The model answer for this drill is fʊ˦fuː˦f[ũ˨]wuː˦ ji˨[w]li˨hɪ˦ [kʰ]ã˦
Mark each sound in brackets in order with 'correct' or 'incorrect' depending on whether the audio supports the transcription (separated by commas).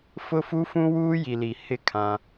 incorrect, incorrect, correct